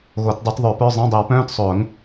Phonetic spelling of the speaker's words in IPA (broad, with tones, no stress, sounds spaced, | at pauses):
ɣ o˨˩˦ t dˤ ɤ˨˩˦ t ðˤ œ˨˩˦ p œ˧˥˧ zˤ ẽ˧˥˧ dˤ i˨˩˦ w p œ̃ː˧˥˧ t sˤ ʊː˨˩˦ ŋ